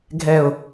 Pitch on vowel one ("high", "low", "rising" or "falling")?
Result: low